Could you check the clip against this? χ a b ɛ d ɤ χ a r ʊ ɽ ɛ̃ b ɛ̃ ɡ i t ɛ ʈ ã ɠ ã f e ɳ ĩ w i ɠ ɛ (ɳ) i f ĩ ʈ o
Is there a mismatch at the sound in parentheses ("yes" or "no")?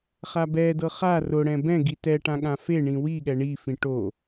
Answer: no